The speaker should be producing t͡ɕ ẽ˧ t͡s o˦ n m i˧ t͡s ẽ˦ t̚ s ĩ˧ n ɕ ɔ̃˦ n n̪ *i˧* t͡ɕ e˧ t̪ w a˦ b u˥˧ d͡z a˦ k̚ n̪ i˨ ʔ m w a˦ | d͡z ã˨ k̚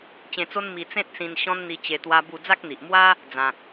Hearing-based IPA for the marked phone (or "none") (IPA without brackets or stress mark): i˧